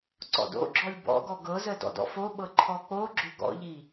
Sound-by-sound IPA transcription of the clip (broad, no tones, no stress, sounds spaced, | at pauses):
ǀ ɔ̰ d o̰ ɡ͡ǁ ɔ lʲ b ɔ̰ ɡ ɔ ɡ ɤ z ə d ɔ̰ d ɔ̰ f o ɓ ɤ ǃʰ ɔ k͡p o ɡ͡ǁ ʏ ɡ ɔ̰ ʎ i